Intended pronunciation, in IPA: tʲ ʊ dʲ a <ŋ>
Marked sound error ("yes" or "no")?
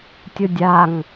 no